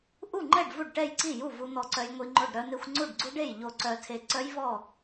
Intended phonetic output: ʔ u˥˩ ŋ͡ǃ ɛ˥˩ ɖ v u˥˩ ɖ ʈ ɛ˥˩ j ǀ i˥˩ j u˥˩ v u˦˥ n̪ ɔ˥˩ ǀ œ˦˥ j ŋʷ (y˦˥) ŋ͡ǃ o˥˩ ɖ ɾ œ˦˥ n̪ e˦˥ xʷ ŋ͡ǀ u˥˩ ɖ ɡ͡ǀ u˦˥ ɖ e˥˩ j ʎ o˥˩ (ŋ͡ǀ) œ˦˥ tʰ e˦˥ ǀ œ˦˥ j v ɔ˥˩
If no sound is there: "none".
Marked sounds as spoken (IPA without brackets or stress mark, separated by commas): i˦˥, ǀ